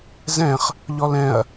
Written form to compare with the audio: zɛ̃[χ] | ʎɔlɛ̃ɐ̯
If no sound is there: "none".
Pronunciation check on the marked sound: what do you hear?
χ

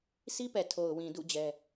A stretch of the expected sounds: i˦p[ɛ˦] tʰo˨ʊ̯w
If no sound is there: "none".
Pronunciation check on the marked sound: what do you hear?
ɛ˨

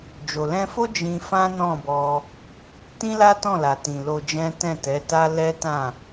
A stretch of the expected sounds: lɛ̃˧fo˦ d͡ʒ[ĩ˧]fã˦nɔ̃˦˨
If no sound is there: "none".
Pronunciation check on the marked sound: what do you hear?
ĩ˧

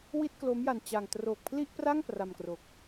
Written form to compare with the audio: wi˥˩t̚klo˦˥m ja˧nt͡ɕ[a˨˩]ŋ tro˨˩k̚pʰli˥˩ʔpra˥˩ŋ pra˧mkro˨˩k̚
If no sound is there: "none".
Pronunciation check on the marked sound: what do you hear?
a˧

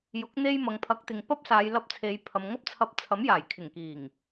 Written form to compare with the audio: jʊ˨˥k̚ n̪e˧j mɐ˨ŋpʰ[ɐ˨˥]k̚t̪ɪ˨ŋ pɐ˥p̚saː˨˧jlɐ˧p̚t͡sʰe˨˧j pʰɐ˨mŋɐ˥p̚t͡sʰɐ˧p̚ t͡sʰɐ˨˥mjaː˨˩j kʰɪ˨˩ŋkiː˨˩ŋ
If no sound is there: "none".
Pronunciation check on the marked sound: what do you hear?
ɐ˨˥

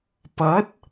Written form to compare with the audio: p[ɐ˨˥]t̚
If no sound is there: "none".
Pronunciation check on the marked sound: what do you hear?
ɐ˨˥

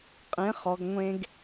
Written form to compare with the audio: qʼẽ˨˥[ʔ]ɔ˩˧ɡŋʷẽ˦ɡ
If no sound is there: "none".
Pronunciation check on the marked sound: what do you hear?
χ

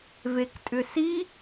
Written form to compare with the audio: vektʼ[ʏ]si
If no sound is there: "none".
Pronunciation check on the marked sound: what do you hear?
ʏ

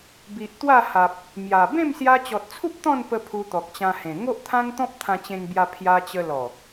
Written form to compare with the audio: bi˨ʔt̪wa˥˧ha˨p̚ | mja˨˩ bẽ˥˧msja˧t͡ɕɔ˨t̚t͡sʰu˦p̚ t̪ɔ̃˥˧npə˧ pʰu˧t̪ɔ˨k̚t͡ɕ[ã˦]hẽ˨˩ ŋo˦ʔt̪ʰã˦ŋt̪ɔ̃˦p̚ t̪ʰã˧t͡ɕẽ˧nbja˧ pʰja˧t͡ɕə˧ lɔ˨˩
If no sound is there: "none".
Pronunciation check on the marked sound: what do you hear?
ã˧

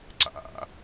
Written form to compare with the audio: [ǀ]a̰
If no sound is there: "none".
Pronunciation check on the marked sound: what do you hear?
ǀ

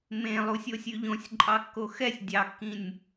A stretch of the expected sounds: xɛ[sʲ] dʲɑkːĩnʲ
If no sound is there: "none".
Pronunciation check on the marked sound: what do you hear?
sʲ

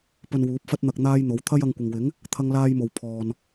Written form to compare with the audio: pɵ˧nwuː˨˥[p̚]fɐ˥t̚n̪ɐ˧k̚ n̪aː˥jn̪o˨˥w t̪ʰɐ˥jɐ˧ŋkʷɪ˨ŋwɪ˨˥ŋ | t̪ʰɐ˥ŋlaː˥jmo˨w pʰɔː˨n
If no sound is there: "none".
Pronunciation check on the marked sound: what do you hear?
p̚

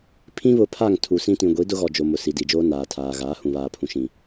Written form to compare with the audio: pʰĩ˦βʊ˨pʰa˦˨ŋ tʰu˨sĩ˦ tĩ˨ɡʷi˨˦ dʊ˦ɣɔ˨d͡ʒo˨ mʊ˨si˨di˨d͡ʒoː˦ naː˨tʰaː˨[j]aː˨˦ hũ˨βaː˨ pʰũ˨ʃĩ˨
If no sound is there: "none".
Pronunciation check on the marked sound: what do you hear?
ɣ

